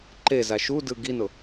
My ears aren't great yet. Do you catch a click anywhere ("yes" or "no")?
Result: yes